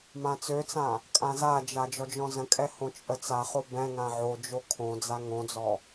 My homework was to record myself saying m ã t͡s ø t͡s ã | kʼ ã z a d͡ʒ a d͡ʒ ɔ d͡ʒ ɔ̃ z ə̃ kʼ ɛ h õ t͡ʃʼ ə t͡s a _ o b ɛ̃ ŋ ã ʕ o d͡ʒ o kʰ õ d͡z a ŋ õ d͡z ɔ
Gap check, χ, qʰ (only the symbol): χ